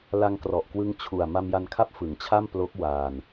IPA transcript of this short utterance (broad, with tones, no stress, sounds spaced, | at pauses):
l a˧ ŋ k r ɔ˨˩ ʔ k w ɯ˦˥ ŋ t͡ɕʰ u˨˩ a̯ m a˧ m j a˧ n kʰ a˥˩ p̚ f ɯ˩˦ ŋ t͡ɕʰ a˥˩ m p l o˦˥ k̚ w aː˧ n